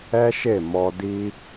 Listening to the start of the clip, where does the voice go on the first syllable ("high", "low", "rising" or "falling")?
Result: high